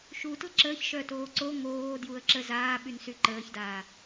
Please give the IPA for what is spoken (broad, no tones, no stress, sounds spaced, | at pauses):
ʃ u t l ə ǁ əː ç ʃ œ t oː ǀ o ŋ oː d j u ə̯ ǁ ə z aː ɓ y n s y ǃ əː ç d aː